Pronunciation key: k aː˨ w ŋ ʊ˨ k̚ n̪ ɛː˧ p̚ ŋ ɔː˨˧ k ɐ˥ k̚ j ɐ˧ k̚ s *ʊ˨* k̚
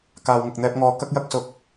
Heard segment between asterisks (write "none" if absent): ʊ˨˥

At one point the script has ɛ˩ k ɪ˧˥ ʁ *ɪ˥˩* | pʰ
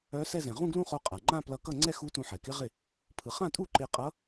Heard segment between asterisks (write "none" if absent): ɪ˥˩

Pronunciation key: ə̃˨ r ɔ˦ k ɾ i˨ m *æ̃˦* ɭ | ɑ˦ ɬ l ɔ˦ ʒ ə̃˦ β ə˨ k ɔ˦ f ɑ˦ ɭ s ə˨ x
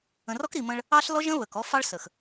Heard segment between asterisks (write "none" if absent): ə̃˦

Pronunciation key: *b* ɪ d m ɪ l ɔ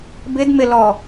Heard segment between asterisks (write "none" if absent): b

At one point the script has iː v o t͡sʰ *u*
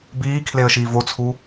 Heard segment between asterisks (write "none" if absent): u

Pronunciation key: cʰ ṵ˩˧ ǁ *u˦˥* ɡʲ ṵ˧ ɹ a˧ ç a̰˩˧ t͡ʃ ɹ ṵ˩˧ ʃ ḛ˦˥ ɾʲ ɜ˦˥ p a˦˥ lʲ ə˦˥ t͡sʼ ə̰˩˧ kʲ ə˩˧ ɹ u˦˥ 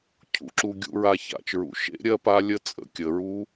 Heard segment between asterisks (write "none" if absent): u˧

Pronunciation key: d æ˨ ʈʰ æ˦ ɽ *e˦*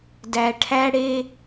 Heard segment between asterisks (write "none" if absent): e˦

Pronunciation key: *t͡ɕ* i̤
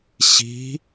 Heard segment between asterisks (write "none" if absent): ɕ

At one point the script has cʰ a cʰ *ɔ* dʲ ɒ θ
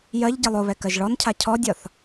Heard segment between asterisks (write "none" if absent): ɔ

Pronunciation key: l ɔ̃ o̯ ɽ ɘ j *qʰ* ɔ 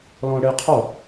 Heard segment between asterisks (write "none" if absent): qʰ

